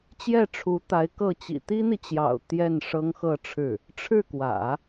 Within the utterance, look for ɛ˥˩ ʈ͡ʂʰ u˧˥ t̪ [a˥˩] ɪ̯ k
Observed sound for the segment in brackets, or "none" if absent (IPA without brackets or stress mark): a˧˥